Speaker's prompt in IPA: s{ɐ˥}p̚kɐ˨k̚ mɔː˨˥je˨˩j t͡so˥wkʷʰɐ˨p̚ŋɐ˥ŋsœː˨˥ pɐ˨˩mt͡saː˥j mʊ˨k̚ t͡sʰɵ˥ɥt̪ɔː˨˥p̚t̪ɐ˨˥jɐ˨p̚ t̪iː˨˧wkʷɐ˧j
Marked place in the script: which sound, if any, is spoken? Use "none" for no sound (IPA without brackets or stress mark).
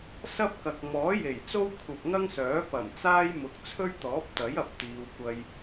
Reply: ɐ˥